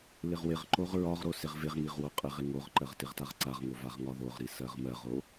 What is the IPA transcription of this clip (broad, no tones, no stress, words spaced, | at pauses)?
lɪʁwɪʁǃoʁ ɹɒʁɾo sɪʁvɪʁŋiʁ woqʼɪʁɪ ŋoʁǃɜʁ tɪʁtaʁǀaʁŋo vaʁŋɒðoʁɾi sɜʁmɜʁo